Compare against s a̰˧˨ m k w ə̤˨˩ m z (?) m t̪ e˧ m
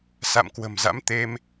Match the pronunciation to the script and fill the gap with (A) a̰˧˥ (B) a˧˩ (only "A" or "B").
A